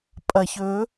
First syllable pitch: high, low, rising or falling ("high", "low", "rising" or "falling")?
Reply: low